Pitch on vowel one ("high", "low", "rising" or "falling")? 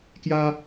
high